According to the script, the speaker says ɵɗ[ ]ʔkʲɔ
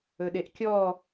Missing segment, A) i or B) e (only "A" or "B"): B